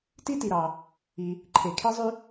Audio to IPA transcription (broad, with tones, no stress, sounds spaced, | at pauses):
t i˥ t i˨ ɾ ɑ˨ | i˨ | ǃʰ e˨ kʰ e˥ zˤ y˥